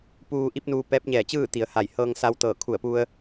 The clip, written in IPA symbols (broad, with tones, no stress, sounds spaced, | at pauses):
p uː˧ ʔ i˧˥ p̚ n uː˧ p ɛː˧˥ p̚ ɲ ɛː˧˩ t͡ɕ ɯː˥˨ t̪ i˩˧ ə̯ h a˧˩ j h ɤː˧ ŋ s a˧ w t̪ ɤː˧˩ kʰ u˧˩ ə̯ p u˧ ə̯